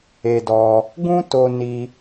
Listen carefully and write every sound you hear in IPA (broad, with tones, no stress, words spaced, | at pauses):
e˧dɔ˧ | ɡũ˦to˧ ni˧